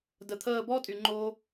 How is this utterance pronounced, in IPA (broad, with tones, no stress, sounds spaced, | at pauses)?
d ə˨ t̪ʰ əː˥˧ b ɔ˥ tʼ y˨ ŋ͡ǃ oː˥